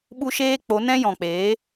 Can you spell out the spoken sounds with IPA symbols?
ɓ u˦ ʃ eː˦ k͡p o˨˦ n ɛ̃˦ j ɔ̃˨ k͡p eː˨˦

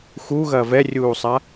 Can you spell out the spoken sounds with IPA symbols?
x u ɣ ɐ v ɛ rʲ uː sˤ a

